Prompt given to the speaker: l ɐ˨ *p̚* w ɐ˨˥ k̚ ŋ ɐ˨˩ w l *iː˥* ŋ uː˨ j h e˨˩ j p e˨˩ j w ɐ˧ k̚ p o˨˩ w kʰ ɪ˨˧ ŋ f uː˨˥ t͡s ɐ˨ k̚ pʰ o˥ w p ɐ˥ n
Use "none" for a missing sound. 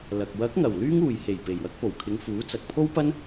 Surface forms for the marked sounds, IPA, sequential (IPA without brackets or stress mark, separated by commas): k̚, yː˥